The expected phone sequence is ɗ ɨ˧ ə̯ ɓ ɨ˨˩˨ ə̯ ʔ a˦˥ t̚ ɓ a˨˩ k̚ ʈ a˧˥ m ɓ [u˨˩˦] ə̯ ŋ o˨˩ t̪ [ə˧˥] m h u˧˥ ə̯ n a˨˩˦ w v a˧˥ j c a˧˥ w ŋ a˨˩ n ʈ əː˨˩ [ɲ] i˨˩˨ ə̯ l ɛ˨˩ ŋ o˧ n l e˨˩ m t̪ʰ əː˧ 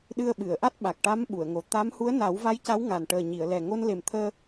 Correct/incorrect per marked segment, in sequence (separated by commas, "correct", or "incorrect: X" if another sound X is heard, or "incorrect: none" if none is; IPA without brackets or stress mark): incorrect: u˨˩˨, incorrect: a˧˥, correct